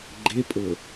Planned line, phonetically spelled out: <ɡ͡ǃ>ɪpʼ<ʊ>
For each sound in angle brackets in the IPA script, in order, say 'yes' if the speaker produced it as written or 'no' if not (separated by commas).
yes, yes